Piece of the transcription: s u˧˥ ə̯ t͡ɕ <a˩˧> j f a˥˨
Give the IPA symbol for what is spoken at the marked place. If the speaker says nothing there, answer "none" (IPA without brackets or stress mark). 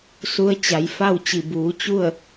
a˩˧